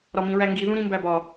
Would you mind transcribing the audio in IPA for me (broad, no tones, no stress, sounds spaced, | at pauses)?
ɾ ɒ m ĩ ɹ æ ŋ ɡ i ð ũ ɾ ĩ m b æ b ɒ